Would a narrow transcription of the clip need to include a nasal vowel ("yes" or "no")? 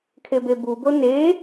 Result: no